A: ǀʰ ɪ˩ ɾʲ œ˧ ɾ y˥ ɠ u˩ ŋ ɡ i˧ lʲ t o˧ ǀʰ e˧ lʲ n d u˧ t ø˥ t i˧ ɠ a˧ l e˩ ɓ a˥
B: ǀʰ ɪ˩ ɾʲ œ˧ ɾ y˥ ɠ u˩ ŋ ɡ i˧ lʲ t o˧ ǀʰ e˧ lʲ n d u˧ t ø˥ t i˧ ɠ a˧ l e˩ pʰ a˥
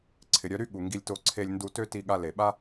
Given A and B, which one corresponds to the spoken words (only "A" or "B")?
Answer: A